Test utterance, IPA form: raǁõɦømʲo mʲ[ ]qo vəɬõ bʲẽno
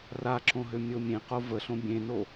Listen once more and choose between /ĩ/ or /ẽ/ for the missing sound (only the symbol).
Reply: ẽ